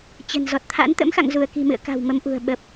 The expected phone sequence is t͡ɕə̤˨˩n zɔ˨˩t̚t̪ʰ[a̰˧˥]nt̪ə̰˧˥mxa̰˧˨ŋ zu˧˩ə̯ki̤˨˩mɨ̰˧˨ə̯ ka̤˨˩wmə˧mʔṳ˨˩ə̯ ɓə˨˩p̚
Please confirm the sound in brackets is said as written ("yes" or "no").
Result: yes